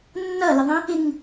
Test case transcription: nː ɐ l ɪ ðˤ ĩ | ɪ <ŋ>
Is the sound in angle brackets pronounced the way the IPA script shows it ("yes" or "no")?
yes